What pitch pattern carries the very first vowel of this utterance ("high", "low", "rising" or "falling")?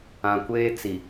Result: low